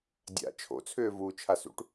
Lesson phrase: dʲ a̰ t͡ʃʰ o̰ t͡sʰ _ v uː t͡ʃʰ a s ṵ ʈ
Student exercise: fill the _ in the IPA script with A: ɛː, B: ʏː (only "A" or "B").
B